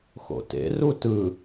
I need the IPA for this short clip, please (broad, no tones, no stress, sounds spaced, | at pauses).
x o̰ t ḛ r u t ɯ